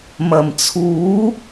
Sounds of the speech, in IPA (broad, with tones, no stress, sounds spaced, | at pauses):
m ɐ˨˩ m t͡sʰ uː˨˥